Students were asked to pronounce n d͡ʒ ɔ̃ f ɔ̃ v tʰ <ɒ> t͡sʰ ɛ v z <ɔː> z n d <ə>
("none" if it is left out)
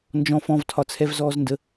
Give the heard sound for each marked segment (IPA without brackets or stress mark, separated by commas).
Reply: ɒ, ɔː, ə